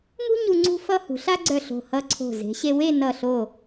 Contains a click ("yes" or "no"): yes